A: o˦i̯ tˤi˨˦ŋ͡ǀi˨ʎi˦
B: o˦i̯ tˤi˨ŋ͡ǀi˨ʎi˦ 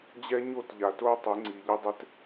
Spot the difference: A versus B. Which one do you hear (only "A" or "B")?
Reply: A